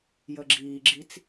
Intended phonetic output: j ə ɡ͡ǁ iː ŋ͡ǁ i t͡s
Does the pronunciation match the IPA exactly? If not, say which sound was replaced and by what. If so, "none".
ŋ͡ǁ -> ɡ͡ǁ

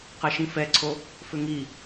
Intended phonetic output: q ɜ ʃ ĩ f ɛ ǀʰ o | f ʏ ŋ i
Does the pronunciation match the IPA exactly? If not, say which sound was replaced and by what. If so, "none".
none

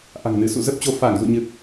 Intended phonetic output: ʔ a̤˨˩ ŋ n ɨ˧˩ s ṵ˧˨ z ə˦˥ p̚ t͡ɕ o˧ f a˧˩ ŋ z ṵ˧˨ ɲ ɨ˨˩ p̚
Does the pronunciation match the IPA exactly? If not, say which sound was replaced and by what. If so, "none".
none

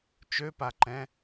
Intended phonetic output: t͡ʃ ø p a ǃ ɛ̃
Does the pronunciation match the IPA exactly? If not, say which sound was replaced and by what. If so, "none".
none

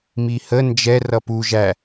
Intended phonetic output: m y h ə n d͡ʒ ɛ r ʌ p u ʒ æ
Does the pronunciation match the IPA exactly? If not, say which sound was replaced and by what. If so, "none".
y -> i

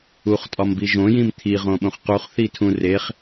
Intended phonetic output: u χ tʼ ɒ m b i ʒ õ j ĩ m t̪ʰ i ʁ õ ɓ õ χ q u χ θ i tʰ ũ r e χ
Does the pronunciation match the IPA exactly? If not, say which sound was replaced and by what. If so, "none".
none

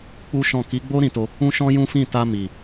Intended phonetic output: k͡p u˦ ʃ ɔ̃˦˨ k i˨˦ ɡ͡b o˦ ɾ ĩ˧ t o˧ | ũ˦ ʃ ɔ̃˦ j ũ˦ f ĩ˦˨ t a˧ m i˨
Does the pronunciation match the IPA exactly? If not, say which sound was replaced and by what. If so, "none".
none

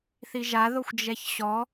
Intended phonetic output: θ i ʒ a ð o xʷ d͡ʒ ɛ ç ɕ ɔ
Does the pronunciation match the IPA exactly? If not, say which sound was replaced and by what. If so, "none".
none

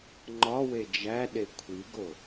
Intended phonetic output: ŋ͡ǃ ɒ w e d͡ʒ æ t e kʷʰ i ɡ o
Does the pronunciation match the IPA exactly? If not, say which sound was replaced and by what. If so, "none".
t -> ɗ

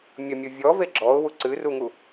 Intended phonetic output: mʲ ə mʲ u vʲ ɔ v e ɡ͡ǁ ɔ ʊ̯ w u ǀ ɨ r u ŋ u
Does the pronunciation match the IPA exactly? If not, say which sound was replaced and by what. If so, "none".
none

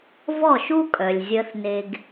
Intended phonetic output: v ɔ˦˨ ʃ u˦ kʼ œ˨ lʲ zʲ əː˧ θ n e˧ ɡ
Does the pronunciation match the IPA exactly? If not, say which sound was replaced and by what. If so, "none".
none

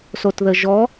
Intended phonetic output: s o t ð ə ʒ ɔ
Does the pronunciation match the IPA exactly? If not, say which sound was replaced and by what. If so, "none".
none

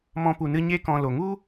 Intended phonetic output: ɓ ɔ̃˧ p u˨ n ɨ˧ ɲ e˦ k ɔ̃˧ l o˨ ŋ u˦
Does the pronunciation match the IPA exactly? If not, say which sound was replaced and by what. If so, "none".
ɓ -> m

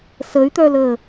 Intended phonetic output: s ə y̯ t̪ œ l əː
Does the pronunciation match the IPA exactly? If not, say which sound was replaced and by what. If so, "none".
none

